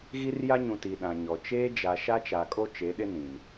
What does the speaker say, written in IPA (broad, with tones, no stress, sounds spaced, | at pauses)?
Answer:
ɣ i˦ r j a˦ ɲ ũ˨ t i˨ ɗ ã˨ ɲ ɔ˨ t͡ʃ eː˦ d͡ʒ a˨ ʃ a˦ t͡ʃ a˨ kʼ o˦ t͡ʃ e˨˦ ɗ ɪ˦ n ĩ˨ m